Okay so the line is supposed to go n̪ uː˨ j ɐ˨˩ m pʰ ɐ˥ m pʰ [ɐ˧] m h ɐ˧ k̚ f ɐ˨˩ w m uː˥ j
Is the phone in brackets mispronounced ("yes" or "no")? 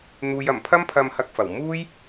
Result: no